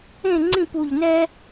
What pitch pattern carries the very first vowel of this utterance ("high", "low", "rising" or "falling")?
falling